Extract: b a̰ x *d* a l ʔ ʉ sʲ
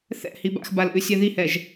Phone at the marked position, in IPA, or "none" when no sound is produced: b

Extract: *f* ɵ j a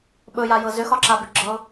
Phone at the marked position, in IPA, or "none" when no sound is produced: ɓ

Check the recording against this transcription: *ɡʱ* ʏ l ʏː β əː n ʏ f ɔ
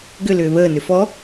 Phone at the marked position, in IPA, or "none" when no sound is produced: ɡ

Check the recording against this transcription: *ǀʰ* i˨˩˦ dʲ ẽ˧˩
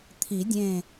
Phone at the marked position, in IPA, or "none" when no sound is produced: t̪ʰ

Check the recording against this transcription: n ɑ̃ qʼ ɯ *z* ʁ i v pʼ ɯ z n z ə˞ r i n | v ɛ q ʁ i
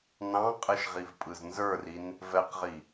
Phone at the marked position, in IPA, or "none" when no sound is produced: ʃ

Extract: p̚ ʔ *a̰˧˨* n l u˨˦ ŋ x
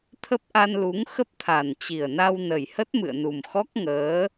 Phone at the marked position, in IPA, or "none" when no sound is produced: a˧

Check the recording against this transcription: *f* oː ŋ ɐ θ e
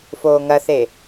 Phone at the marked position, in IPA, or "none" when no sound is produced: f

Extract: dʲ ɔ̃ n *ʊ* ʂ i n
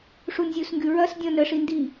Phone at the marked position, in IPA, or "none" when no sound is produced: ə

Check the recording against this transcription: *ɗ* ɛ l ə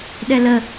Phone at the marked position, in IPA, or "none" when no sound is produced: ɗ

